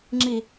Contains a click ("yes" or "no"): yes